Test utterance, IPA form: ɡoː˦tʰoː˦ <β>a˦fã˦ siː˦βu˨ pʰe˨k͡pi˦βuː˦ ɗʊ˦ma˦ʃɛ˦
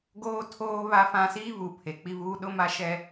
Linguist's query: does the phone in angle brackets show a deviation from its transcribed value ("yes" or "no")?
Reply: no